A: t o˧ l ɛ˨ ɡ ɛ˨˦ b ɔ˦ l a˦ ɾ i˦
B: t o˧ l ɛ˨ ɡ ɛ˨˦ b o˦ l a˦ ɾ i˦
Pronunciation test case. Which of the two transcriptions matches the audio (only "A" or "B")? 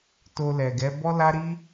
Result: A